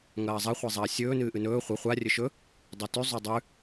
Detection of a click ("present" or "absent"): absent